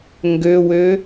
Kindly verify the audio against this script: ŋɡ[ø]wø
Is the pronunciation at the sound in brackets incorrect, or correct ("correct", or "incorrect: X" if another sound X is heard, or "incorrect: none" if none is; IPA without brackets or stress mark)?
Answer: correct